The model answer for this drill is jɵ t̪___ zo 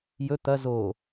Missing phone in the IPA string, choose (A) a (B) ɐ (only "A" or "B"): B